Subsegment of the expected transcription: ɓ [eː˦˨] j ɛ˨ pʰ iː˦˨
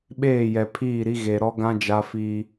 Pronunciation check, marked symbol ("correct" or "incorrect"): correct